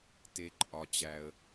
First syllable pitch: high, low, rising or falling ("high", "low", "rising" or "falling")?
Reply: low